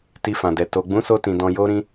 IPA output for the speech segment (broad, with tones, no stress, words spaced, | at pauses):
ti˧fã˨dɛ˨ to˨ ɡ͡bũ˨˦so˧tĩ˨ dɔ̃˧ jo˧ ɾĩ˧